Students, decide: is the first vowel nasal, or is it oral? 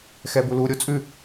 oral